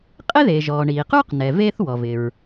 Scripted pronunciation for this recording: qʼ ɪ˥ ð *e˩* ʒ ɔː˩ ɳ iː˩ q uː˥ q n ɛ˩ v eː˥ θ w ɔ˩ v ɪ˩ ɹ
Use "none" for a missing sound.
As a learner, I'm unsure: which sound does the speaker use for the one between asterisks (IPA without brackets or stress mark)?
e˩